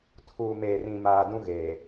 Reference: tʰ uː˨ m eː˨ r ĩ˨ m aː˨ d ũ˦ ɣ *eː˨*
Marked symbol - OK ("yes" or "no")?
yes